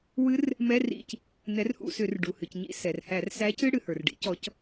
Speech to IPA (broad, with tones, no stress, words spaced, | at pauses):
wɨ˦˥r | mɛ˧˥˧rḭ˦˨c | nɛ˨˥rhṵ˦˨sʏ˧˩˧r ɖu˩hɨ˩c ɲḭ˦˨ sɛ˩r hæ˧˩˧r sæ˨˥cɨ˧˥˧ɽɨ˩ hə˞˩rɖḭ˦˥cɔ˨˥c